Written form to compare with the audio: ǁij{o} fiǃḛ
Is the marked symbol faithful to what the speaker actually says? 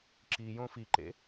no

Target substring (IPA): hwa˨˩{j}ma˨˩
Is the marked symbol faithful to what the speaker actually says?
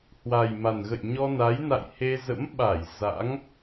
yes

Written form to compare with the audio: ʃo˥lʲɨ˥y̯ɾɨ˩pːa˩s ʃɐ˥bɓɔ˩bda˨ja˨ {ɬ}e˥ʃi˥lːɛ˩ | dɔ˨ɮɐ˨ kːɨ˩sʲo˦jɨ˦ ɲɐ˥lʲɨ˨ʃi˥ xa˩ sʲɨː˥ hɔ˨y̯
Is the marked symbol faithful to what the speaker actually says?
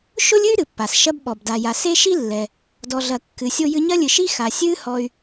no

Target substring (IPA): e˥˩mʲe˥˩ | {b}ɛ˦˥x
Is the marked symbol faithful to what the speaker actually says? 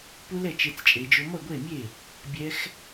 no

